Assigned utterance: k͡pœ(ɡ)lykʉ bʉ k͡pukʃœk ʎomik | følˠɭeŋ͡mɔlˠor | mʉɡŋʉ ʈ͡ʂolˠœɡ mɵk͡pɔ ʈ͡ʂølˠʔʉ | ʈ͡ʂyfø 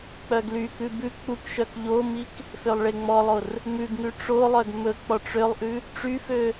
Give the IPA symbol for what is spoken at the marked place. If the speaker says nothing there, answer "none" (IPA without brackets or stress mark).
ɡ